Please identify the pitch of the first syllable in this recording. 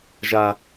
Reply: high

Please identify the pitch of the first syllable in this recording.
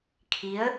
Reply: rising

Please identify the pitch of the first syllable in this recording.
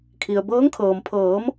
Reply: low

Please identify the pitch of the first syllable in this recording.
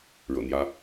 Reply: low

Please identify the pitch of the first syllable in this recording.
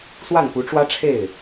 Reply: falling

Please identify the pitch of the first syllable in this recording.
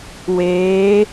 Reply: rising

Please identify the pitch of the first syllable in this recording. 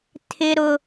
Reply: low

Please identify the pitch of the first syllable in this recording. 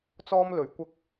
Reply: high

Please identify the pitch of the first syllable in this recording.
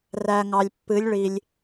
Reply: low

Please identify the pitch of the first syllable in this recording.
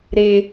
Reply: high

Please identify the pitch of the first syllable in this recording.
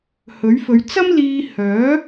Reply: rising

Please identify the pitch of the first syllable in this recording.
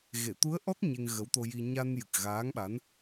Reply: low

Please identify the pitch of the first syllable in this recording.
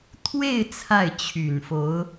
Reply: falling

